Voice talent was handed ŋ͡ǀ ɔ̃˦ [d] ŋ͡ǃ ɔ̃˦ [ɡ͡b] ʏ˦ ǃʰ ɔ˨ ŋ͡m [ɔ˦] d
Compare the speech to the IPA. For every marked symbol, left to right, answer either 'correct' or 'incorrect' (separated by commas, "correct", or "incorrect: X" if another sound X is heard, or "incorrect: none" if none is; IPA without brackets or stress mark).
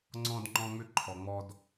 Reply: correct, incorrect: ŋ͡m, correct